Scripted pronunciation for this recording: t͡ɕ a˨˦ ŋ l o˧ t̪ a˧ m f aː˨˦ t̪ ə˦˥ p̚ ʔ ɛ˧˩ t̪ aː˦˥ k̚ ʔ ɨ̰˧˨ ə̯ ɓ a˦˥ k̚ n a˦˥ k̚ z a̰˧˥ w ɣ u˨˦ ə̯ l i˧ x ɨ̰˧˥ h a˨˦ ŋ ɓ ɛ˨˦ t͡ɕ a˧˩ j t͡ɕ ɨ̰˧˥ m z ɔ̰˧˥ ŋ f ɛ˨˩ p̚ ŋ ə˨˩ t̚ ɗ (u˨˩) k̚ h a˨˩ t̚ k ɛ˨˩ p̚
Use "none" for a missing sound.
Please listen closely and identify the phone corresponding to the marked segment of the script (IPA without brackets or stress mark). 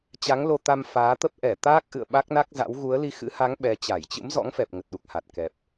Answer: u˨˩